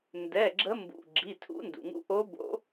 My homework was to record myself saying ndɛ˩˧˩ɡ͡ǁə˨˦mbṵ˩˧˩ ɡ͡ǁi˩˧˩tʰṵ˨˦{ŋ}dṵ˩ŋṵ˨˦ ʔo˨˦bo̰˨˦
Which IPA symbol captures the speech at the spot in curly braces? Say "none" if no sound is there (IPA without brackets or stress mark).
n